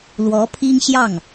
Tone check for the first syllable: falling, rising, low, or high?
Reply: rising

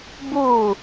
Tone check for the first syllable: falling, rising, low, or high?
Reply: falling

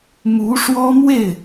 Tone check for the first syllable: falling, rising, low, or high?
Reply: rising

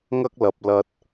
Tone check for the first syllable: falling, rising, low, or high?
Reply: high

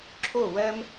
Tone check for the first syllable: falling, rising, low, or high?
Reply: falling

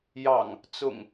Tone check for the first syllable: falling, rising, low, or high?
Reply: low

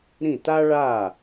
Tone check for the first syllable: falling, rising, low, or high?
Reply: falling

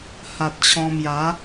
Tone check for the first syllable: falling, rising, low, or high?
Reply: low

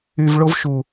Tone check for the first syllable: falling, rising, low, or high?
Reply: low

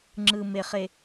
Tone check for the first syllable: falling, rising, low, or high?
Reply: low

